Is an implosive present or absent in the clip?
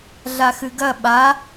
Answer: present